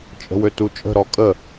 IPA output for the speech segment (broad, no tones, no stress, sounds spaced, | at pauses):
t͡ʃʼ ə̤ w ø t u t͡ʃʼ ə̤ ɾ ɔ kʼ ə